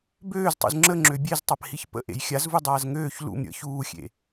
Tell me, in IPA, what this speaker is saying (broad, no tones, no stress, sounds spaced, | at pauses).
b øː z tˤ ṵ z ŋ͡ǁ ə ŋ͡ǁ ø bʲ e z tˤ a p h i ç p ə̰ ʔ ḛ j xʲ a z v u dˤ aː z ŋ øː ç l ṵ m ɾʲ ə̰ ç uː xʲ ḛ